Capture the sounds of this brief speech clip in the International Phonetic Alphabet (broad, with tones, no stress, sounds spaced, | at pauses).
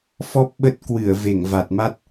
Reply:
f ɔ˦˥ p̚ ɓ ə˦˥ t̚ k w ɨ˧˩ ə̯ v e˧˩ ŋ v a˨˩ t̚ m a˦˥ t̚